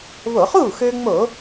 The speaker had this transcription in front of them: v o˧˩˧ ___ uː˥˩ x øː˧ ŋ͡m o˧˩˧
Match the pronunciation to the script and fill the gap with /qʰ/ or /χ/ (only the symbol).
χ